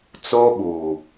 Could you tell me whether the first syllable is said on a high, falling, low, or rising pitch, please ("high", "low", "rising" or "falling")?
high